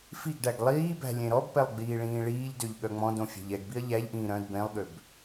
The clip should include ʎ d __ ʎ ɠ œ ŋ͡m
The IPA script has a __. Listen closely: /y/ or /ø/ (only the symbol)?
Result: ø